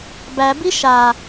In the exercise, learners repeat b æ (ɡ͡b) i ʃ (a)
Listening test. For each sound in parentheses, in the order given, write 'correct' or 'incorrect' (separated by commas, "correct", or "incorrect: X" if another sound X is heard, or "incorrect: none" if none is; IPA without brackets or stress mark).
incorrect: b, correct